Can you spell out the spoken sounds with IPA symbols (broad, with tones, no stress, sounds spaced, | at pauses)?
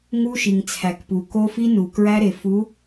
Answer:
ŋ u˦ ʃ i˨ ŋ t͡sʰ æ˨ k p u˨ k o˦ f i˦ n u˨ k ɹ æ˦ ɾ e˨ f u˨˦